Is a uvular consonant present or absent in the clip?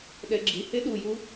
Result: absent